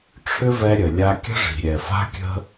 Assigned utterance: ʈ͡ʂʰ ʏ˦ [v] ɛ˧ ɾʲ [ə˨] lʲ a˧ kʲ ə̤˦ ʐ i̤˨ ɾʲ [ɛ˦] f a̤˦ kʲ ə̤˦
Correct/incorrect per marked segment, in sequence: correct, correct, incorrect

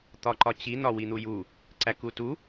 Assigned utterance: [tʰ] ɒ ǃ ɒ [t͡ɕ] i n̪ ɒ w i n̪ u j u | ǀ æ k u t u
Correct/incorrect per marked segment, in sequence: incorrect, correct

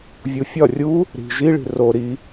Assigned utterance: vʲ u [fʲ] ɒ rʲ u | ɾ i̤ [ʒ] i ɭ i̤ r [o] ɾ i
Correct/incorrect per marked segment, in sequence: correct, correct, correct

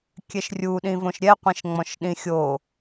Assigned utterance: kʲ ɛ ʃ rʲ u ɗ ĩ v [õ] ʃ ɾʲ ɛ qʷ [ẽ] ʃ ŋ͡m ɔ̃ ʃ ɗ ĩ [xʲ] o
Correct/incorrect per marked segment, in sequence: correct, correct, correct

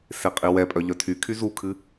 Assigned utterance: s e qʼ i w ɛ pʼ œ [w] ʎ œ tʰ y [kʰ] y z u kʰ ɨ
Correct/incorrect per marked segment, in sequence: incorrect, correct

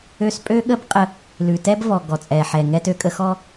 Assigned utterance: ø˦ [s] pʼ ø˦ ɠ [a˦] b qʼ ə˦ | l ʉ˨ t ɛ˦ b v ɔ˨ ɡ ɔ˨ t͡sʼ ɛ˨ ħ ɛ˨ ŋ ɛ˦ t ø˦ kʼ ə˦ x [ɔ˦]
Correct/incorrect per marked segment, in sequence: correct, incorrect, correct

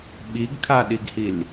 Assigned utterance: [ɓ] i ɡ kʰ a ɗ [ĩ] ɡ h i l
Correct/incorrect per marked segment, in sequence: correct, incorrect

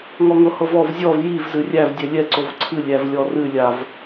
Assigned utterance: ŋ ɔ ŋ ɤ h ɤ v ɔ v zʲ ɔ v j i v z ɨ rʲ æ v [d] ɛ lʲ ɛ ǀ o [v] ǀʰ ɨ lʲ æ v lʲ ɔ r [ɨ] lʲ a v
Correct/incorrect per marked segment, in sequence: incorrect, correct, correct

